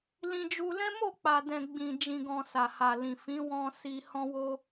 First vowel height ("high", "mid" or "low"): high